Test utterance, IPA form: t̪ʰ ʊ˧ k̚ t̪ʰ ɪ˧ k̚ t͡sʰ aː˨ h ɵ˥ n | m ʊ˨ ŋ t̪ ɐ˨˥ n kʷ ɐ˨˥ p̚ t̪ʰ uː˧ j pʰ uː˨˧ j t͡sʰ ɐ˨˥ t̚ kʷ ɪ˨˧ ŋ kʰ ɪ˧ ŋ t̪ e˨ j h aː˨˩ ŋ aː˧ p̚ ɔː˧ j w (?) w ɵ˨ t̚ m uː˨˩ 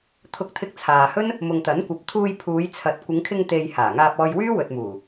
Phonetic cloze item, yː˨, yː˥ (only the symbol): yː˥